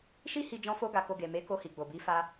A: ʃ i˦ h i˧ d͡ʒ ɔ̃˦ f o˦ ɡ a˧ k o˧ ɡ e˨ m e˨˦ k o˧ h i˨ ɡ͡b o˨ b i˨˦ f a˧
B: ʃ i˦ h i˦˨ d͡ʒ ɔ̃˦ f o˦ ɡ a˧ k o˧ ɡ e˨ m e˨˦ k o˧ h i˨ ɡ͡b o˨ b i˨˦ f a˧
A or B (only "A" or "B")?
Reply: A